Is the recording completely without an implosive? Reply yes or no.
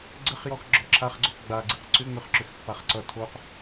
yes